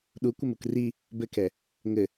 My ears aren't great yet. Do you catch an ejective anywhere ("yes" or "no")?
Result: no